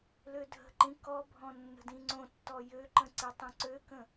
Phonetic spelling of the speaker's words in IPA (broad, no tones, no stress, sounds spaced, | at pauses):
l ø dʱ ə̤ ǃ ĩ k ɔ bʱ ɔ̃ nː ə̤ d ĩ ŋ͡ǀ õ tː ɔ j ø ǃ ə̃ ǀ i tˤ ĩ ǀ ø k ə̃